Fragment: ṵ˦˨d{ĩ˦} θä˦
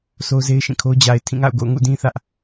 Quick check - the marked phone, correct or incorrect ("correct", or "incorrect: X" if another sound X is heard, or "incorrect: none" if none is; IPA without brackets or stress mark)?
correct